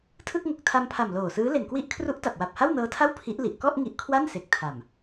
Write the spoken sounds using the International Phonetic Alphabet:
tʰ ɯ˥˩ k̚ ŋ o˨˩ k̚ tʰ a˧ m pʰ a˨˩ m l oː˨˩ s ɯː˦˥ l e˨˩ n k w i˦˥ ʔ kʰ r u˦˥ ʔ t a˨˩ p̚ w a˨˩ p̚ h a˥˩ w n ɤː˦˥ tʰ a˥˩ w pʰ i˦˥ ʔ l i˨˩ ʔ k ɔ˥˩ ʔ ŋ i˦˥ ʔ kʰ w a˥˩ n s e˨˩ k̚ tʰ a˨˩ m

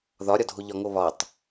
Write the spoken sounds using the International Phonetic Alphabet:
ð ɒ ɾʲ ɒ dʱ o ʎ ɒ ŋ o β ɒ tˤ

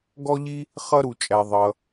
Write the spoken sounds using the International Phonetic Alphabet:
ɡ ɔ˥ ʎ i˥ | χ ʌ˥ ɾ u˩ t͡ʃʼ æ˩ ðˤ ʌ˩

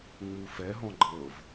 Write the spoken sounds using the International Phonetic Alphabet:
ŋ͡m u f ɛ ɦ ɔ̃ ɡ͡ǃ ɤ v

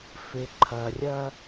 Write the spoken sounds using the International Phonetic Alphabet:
f ɪ˨ ǃʰ ɐ˨ rʲ ɐ˦

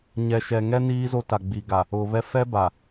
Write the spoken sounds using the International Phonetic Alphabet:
ɲ ɛ˨ ʃ ɛ˨ ŋ ɛ˦ n iː˦ z o˦ t a˨ ɡ͡b i˨ ɡ a˨ | ʊ˨ β ɛ˦ f ɛ˦ b a˨

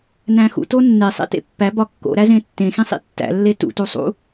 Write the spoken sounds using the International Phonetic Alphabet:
n æ̃ x ṵ t o nː e sˤ ḛ t ḛ pː æ b ɒ kː o̰ ɾ æ z ẽ tː ẽ x ĩ sˤ ḭ tː æ̰ lː e t ṵ t u sˤ ṵ

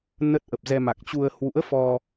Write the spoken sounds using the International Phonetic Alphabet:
n ə˦˥ t̚ ʔ ə˨˩ p̚ z ɛ˧ m a˨˩ k̚ t͡ɕ u˧ ə̯ h w ṵ˧˥ ə̯ f ɔ˧

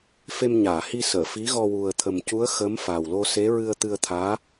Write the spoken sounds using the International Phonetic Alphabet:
f e˧ m ɲ aː˨˩˨ h i˧ s əː˨˩˨ f i˧˥ ɣ ɔ˧ w u˨˩ ə̯ t̪ʰ ə˨˩ m c u˧˥ ə̯ x ə˧˥ m f a˨˩ w l o˧ s e˧˥ ɹ ɨ˧ ə̯ t̪ ɨ˧ ə̯ t̪ʰ aː˧˥

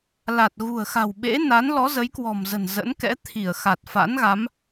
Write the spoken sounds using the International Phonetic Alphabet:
l a˨˩ t̚ ɣ ṳ˨˩ ə̯ x a̤˨˩ w ɓ ḛ˧˥ n a˨˦ n l ɔ˨˦ z ə˨˦ j k w ɔ̤˨˩ m z ə̤˨˩ n z ə̰˧˥ n k ɛ̰˧˥ t̪ʰ i˧˩ ə̯ x a˨˩ t̚ f a̰˧˥ n ɣ a˨˦ m

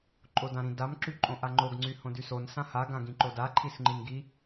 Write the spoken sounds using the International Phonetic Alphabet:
ǃʼ o d ã ɾ ĩ d a m ǁ y ǃʼ õ ʔ a ŋ͡ǃ o ɡ ŋ͡ǀ y h õ d y s o n s ã h a ɡ ã ɡ ĩ ǃ o d a ǃʰ i s ŋ͡ǃ i n ɡ i

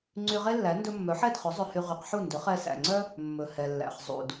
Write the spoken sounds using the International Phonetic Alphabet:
ŋ͡ǀ y˧ ʁ e˥ lː æ˩˥ n d ɵ˧ mː œ˩˥ ħ ɛ˥˩ d χ ɵ˩˥ zˤ ɵ˧ h y˧ ʁ y˩˥ q ħ u˥˩ n d ɵ˩˥ χ ɛ˧ s æ̰˩ ŋ͡ǀ œ˥ | mː ɵ˩ h ɛ˩ lː æ̰˩ χ zˤ ṵ˩ d

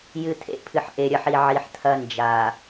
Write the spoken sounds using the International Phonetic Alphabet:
j ɨ˨ t̪ʰ ḛ˦ pʰ ɨ˨ ħ ʔ e˨ ɾʲ ɐ˨˦ ħ i˨ ʕ i˨ ħ t̪ʰ ɐ˦ n d͡ʒ a˨

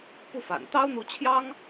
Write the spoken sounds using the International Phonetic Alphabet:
p u˥˩ f a̰˨˩ n t̪ ɑ˥ ʊ̯ n̪ u˧˥ t͡ɕʰ j ɑ˥ ŋ

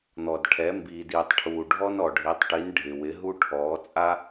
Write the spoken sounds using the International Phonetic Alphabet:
n̪ ɔ˨ d ʈʰ ɛ˨˦ m b iː˨ d iː˨ tˤ ʈʰ uː˨ ɖʱ ɔ˦ n ɔ˨ ɖʱ i˨˦ tˤ ʈ i˨˦ n ɖʱ ɪ˨ w ɪ˨˦ ɦ u˦ ʈʰ ɔː˨˦ t͡sʼ a˦

